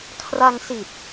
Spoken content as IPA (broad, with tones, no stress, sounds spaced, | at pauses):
kʰ r a˧ ŋ s i˨˩ t̚